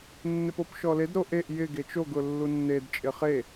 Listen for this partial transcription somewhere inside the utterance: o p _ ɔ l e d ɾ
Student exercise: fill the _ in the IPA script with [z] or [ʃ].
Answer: ʃ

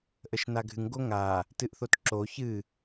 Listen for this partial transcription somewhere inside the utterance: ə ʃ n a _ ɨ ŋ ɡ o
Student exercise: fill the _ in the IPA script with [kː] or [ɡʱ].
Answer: ɡʱ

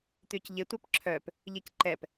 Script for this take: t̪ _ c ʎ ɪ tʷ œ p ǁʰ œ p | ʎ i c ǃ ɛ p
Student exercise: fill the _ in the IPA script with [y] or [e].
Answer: y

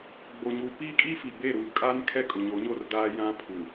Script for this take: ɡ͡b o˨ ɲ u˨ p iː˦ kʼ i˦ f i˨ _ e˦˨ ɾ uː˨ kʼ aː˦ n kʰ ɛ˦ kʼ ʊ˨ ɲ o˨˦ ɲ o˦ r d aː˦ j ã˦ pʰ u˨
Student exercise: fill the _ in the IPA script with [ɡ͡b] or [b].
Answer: b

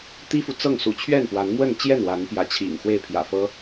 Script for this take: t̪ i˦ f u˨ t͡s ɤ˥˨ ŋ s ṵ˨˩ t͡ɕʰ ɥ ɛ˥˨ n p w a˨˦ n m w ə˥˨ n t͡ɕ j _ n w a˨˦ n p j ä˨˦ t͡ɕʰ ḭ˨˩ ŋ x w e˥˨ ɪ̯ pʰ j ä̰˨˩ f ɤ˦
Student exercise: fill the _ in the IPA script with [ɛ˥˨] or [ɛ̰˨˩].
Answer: ɛ˥˨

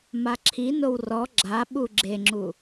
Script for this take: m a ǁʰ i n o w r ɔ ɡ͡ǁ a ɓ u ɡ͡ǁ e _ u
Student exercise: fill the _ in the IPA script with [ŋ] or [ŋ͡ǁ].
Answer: ŋ͡ǁ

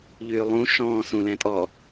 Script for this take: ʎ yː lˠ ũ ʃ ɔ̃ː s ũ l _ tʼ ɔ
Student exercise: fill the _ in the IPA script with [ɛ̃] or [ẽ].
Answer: ɛ̃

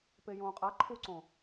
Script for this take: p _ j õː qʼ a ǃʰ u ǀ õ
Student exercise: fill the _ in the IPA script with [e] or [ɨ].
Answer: e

